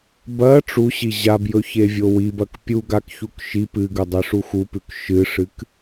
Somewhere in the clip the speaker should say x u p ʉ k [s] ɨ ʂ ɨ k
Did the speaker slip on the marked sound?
yes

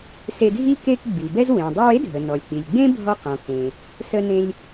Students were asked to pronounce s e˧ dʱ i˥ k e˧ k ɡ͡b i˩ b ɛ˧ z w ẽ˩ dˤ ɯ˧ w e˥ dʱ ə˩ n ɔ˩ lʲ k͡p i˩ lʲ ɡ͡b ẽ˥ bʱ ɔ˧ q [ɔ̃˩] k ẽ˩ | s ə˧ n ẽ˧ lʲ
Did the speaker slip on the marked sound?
no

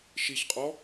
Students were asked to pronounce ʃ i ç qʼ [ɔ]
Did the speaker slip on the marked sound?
no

